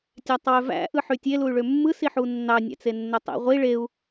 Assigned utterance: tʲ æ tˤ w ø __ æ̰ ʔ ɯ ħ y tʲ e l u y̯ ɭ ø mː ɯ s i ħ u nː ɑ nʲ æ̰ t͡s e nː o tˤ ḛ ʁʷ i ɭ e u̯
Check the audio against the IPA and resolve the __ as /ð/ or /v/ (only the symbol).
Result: v